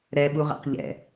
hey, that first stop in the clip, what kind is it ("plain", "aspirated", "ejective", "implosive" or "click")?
implosive